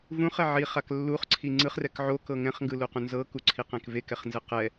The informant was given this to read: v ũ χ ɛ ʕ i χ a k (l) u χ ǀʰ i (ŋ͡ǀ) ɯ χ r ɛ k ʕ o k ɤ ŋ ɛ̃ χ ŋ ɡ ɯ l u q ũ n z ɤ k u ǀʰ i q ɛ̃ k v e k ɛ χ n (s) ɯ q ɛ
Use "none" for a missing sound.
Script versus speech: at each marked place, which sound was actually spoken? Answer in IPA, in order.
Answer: lː, ŋ͡ǀ, z

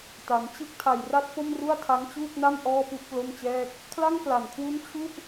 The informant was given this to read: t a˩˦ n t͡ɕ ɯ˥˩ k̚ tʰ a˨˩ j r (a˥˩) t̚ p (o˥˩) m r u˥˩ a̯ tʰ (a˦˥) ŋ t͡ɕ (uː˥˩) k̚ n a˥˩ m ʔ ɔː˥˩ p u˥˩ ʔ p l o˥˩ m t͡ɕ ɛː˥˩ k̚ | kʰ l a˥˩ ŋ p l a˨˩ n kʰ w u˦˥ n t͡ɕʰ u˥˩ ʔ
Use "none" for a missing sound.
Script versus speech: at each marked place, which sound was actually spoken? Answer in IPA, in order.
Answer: a˦˥, o˥˩, a˦˥, uː˥˩

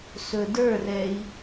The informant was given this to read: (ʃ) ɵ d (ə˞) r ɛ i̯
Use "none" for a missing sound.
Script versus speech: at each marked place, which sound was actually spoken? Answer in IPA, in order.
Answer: s, ə˞

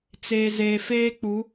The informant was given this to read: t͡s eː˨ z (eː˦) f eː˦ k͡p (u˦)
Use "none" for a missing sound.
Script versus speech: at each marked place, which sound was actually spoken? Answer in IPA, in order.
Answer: eː˨, u˨˦

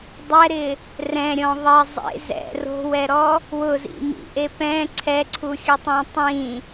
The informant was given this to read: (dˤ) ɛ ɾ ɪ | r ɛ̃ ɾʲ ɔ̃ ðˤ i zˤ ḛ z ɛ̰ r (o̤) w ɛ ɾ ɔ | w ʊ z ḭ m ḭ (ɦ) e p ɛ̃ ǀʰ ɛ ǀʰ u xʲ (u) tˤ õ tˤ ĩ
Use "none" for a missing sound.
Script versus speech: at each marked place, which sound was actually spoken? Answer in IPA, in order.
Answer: dˤ, o̤, ʔ, ʊ

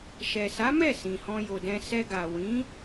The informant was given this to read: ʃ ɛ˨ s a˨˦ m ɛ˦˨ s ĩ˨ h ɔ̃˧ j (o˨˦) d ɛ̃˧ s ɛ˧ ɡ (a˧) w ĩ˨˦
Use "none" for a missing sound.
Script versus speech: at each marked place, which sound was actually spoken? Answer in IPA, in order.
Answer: o˨, a˨

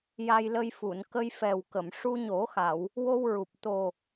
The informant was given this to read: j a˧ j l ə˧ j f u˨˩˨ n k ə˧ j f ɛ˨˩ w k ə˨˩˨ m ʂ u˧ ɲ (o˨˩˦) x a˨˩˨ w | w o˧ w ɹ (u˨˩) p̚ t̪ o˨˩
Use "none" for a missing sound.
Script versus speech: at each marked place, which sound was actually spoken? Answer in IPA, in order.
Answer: o˨˩˦, u˨˩

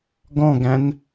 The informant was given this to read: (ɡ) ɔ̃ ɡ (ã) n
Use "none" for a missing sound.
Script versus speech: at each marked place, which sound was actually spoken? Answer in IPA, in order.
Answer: ɡ, æ̃

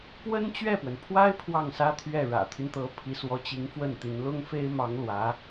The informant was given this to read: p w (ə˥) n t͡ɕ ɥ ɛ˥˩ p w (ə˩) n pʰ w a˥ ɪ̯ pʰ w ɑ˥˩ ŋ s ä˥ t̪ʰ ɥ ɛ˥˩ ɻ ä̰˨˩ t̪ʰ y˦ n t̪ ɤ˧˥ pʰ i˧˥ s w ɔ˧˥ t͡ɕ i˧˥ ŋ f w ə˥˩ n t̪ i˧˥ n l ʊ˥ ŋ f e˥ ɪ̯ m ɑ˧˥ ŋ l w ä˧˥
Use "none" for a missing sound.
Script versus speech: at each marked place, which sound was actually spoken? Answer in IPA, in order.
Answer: ə˥, ə˩

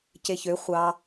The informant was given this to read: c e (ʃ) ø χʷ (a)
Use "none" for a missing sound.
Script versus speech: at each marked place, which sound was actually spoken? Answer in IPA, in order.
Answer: ç, ɑ

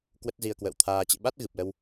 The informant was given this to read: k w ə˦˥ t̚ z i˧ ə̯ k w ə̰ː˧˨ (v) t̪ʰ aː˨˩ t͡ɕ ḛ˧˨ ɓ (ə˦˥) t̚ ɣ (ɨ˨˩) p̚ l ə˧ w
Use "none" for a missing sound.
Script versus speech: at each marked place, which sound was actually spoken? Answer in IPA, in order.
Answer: w, a˦˥, ɨ˨˩

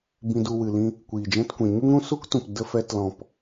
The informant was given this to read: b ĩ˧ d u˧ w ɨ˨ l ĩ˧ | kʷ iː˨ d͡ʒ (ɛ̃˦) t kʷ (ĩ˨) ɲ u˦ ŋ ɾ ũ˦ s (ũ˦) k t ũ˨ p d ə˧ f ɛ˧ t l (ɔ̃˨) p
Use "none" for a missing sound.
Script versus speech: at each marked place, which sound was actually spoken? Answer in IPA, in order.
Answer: ɛ̃˦, ĩ˨, u˦, ɔ̃˨

